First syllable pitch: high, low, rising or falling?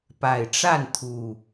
low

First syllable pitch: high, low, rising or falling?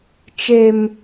high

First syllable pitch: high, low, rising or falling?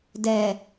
low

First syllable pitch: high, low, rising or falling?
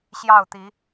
falling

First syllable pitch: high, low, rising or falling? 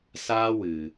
high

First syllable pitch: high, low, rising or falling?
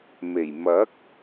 low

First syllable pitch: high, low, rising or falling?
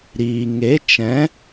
low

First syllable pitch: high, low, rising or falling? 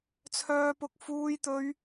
high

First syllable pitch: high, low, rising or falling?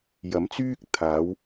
rising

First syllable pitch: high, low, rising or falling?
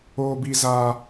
high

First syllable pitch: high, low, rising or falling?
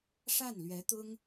falling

